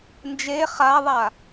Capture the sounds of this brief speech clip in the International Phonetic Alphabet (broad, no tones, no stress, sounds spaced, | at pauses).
n d͡ʒ e χ a ðˤ a